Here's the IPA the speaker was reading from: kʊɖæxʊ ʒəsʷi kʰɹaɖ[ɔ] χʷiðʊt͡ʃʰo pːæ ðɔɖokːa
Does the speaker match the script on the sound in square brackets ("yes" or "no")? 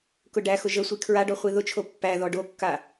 yes